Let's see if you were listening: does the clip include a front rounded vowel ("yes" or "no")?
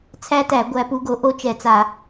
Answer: no